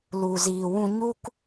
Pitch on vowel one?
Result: low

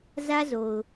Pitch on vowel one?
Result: high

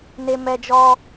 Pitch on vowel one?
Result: low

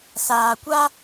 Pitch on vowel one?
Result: low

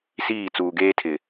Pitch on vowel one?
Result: falling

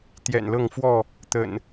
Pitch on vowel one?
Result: low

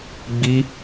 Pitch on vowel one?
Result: high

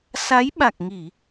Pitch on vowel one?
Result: rising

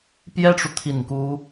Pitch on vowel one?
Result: high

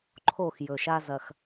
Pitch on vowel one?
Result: falling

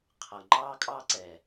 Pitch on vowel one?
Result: low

